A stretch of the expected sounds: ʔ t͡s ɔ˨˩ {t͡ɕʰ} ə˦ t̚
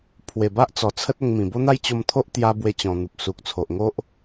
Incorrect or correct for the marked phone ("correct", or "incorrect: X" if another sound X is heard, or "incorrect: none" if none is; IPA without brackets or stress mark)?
incorrect: t͡sʰ